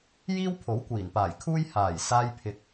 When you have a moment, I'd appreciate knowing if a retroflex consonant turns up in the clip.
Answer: no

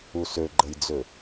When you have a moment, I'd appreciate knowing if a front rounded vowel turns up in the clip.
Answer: yes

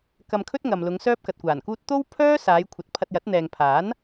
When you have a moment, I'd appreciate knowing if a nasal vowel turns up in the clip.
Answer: no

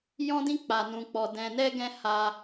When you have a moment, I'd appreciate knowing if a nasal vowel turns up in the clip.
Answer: yes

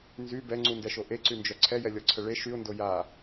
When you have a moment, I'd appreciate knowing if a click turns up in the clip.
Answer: yes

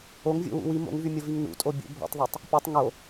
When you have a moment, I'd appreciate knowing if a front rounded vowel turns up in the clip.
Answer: yes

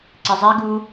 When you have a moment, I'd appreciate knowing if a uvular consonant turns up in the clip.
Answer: no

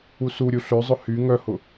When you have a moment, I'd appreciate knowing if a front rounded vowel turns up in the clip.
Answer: yes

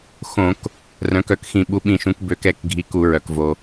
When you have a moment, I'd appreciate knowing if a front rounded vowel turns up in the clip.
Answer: yes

